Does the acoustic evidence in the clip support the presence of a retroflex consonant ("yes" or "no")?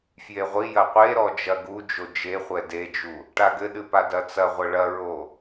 yes